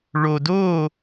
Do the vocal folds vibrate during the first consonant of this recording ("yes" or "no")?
yes